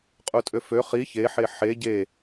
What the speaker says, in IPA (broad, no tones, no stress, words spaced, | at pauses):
qʼutʼøfø χi çe ħeħe ɟe